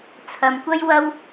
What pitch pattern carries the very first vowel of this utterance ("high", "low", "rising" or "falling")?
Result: low